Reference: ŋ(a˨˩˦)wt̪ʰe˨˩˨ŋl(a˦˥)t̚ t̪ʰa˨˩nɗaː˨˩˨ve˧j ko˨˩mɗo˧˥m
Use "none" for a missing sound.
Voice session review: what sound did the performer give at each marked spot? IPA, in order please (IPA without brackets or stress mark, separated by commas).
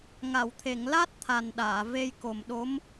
a˨˩˨, a˦˥